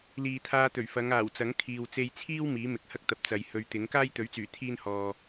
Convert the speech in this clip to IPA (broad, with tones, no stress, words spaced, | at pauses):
liː˨t̪ʰaː˧t̪ɵ˨˩ɥ fɐ˨˧ŋaː˨˩w t͡sɐ˨˥ŋkʰiː˨w t͡se˧jt͡sʰiː˥w miː˨˥mɪ˨˥k̚hɐ˥k̚t̪ɐ˨p̚ t͡sɐ˨jhɵ˧ɥt̪ɪ˨˥ŋ kaː˥jt̪ɵ˨˥ɥt͡syː˨˩ t̪ʰiː˥nhɔː˧